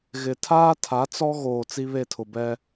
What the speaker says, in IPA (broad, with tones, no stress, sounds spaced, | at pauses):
ɣ ɪ˨ tʰ aː˦ tʰ a˨˦ t͡s ɔ˦ ɣ oː˨ t͡s i˦ β e˦˨ tʰ ʊ˨ b ɛ˦